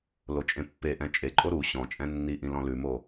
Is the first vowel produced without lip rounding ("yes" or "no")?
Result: no